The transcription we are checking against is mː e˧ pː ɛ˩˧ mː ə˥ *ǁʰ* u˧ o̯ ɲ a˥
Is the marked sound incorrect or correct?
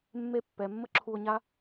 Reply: correct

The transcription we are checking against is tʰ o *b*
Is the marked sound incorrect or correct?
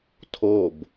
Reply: correct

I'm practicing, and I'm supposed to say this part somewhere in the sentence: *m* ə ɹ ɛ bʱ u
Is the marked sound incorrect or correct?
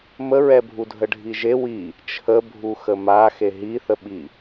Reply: correct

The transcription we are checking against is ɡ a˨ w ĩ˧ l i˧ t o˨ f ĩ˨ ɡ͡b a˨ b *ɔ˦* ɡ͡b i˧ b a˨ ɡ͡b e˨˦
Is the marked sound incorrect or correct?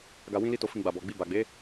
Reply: incorrect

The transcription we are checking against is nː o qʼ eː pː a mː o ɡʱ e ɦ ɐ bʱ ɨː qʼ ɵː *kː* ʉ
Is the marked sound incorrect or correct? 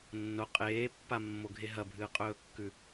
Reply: correct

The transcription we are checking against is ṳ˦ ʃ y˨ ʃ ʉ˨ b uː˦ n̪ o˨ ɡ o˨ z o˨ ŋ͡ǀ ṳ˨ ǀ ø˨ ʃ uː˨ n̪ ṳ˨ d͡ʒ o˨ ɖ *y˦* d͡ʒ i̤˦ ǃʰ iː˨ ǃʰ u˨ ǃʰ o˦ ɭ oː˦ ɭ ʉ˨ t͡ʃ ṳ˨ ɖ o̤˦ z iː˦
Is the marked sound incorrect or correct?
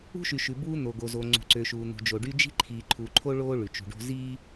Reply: correct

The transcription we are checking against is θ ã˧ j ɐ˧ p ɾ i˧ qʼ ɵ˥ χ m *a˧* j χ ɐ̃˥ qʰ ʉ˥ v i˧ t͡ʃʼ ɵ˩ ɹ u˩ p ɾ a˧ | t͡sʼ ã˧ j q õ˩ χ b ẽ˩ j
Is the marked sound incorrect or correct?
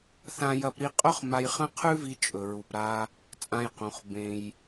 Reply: correct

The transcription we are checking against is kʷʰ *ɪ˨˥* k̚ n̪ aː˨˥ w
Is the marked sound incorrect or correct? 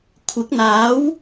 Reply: correct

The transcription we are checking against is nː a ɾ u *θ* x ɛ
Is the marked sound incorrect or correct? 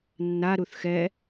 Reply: correct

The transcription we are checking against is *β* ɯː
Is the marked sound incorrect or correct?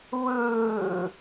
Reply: correct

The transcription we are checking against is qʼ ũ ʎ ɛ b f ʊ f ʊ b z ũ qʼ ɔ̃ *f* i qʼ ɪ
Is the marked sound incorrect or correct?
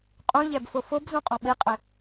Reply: incorrect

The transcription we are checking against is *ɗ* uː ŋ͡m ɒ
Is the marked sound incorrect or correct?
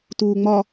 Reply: incorrect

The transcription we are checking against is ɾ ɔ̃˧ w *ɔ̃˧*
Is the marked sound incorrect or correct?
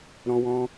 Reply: correct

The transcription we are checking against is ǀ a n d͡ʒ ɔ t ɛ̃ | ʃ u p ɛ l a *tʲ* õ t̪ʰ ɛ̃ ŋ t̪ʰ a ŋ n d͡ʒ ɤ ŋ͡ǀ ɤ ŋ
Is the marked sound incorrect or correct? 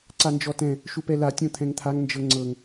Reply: correct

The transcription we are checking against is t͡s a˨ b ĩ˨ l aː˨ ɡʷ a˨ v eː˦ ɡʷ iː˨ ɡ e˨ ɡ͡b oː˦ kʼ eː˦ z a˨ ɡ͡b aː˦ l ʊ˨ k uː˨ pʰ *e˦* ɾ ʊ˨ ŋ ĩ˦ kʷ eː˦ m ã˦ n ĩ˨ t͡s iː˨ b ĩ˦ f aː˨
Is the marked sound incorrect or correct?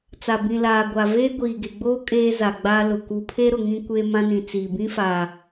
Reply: correct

